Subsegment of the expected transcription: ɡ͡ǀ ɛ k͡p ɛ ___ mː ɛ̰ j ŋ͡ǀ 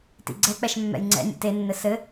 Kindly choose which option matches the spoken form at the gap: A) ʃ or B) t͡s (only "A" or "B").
A